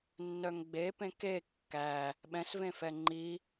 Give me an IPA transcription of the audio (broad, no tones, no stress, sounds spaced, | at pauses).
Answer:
nː œ ŋ ɡ͡b e p ẽ k e kː æ | ɓ ɛ̃ s v ẽ f ɛ ŋ͡ǃ i